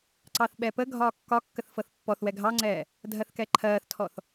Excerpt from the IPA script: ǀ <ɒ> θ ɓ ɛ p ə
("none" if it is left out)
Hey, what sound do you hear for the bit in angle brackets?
ɑ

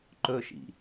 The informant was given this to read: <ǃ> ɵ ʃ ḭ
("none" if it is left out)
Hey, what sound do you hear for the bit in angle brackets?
ǃ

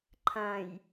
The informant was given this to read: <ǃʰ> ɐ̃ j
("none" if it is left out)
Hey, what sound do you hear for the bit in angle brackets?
ǃʰ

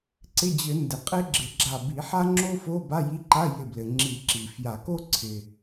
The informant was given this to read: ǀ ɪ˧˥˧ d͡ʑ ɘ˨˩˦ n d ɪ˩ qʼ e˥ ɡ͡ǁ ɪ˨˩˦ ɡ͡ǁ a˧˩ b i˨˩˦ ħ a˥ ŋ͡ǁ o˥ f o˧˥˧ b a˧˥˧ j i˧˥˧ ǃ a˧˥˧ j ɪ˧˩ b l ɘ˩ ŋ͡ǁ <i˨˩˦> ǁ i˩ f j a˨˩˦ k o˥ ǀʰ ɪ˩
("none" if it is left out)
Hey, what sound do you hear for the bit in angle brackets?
i˨˩˦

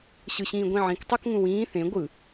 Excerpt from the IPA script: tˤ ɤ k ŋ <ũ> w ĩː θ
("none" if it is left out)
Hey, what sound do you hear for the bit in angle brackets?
ũ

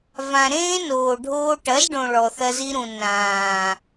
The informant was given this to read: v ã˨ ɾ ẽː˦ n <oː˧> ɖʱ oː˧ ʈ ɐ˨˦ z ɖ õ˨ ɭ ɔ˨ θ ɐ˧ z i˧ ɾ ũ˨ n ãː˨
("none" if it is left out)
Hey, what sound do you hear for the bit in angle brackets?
oː˨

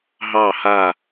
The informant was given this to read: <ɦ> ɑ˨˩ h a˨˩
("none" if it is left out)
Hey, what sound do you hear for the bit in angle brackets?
ɦ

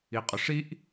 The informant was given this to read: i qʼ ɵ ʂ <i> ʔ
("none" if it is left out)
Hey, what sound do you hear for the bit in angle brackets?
i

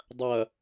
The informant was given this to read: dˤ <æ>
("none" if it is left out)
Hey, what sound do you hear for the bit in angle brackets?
ɐ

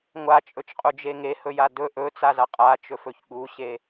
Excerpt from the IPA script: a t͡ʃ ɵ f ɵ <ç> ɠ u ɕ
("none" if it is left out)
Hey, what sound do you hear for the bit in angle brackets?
ç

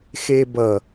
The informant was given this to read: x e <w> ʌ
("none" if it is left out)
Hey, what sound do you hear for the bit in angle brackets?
b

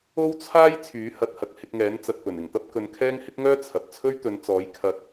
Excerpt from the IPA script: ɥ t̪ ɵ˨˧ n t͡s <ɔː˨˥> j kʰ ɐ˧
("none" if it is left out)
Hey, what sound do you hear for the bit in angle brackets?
ɔː˨˥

